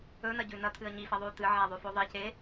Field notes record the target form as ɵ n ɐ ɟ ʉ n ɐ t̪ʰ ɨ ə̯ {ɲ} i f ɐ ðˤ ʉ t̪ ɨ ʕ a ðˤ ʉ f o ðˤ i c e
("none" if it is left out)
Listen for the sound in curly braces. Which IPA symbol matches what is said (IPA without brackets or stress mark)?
ɲ